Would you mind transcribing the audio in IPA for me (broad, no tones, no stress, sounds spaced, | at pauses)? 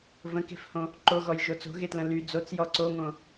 v ə̃ k e̤ f h õ | ǃ o ɣ ɔ j ʒ o t͡s o̤ ɣ e t l ə̃ l y d͡z o t͡s j ɔ ǀ o ŋ õ